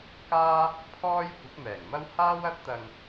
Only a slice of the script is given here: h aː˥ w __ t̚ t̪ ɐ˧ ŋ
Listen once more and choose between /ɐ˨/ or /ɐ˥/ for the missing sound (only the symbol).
ɐ˥